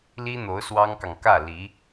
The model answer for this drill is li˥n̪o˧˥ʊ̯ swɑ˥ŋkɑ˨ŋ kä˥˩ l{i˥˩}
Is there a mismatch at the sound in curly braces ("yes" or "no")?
yes